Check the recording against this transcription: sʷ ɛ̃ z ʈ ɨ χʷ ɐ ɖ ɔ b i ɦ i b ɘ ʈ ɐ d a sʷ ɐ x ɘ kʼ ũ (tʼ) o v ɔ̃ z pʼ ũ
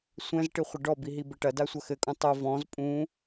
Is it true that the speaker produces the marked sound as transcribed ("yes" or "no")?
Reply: no